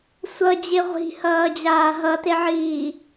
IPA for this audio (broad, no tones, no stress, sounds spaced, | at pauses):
sʷ ʌ d͡ʑ e ʁʷ i̤ h ʌː d͡ʑ aː ɦ ʌ t e ʕ iː